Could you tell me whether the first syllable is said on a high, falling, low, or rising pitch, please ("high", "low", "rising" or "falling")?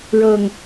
low